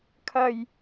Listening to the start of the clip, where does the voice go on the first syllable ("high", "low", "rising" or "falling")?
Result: low